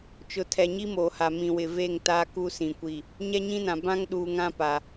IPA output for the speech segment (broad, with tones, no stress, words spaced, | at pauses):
t͡ʃʊ˨tʰɛ˨ɲi˦ moː˨ha˨ mĩ˨wɪ˨ve˦˨ŋ ta˦ ku˦sĩ˨kʷi˦˨ | ɲɛ˦ɲĩ˦nã˨ bã˦ŋɗuː˨ŋã˦ pa˨